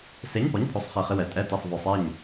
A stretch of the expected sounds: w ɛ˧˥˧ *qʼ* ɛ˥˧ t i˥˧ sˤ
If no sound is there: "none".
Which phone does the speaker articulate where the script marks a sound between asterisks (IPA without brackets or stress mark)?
tʼ